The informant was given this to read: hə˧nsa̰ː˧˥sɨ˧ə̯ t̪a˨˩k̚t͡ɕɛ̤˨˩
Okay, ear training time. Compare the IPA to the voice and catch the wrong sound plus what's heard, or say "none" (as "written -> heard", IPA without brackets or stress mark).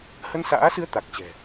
none